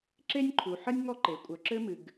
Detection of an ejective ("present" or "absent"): present